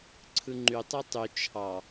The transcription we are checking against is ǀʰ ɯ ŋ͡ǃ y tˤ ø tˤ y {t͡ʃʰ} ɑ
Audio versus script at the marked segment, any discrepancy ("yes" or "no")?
no